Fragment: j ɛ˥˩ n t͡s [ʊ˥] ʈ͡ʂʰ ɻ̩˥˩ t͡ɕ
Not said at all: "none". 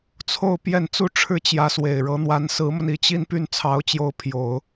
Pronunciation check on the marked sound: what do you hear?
u˥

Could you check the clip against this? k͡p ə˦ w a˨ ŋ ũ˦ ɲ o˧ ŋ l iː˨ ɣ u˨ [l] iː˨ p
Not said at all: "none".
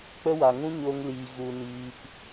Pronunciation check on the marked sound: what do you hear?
n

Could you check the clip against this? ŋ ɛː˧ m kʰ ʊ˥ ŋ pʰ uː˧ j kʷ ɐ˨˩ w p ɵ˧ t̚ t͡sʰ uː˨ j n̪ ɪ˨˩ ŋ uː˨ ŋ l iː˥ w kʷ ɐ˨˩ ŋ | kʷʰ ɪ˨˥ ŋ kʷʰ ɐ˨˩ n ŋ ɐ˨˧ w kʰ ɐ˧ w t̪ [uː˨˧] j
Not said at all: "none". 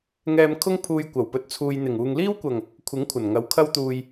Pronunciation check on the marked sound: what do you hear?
uː˨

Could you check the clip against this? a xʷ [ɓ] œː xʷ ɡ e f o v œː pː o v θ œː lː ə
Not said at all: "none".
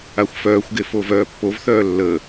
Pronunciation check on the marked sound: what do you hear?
f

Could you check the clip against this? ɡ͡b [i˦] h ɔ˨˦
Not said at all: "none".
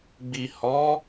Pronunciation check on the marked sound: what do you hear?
i˨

